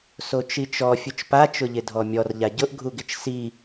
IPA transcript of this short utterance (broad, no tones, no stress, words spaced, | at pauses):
sot͡ʃit͡ʃɔ fʲut͡ʃpa t͡ʃʊʎɪdʱɔmʲɔr ʎaɟʊʔ ɡʱuɡɪt͡ʃsi